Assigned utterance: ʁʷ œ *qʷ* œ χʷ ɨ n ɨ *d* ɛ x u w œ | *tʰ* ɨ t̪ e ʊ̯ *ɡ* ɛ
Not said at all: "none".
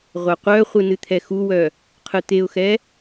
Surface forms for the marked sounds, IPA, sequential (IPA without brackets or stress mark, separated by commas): qʷ, t̪ʰ, qʰ, x